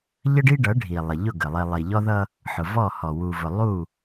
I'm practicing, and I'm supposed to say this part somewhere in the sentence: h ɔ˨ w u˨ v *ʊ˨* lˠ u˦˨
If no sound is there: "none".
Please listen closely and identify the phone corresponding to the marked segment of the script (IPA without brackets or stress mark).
ʊ˨